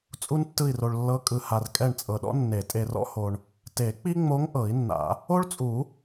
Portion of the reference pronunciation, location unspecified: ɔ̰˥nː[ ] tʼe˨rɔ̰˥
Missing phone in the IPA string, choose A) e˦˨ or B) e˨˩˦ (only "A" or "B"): B